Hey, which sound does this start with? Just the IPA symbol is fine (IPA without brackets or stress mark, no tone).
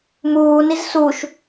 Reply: m